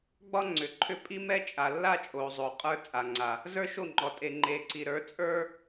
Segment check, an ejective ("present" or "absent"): present